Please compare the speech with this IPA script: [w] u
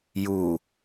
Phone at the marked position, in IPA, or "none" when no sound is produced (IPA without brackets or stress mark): j